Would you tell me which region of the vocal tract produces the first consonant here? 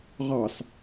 uvula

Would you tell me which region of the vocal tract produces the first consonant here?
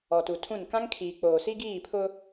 tongue tip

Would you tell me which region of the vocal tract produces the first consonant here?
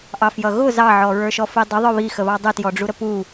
throat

